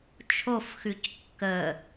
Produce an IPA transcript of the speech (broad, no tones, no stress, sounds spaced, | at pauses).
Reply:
t͡ʃʰ o f x ʉ c kː ə